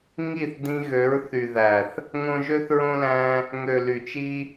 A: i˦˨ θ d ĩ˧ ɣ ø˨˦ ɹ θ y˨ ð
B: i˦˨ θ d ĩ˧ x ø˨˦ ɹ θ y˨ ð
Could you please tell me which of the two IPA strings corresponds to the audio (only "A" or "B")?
A